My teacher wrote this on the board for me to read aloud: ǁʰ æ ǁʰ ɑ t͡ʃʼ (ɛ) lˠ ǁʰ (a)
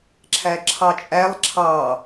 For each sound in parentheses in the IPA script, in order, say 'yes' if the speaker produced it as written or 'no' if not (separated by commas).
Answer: no, no